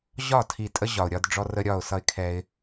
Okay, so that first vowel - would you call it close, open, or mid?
open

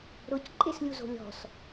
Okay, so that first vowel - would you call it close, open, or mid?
close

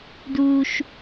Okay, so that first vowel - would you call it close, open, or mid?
close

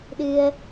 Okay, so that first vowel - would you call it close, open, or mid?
close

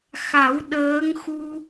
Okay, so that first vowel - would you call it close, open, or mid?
open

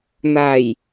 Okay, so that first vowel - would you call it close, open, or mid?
open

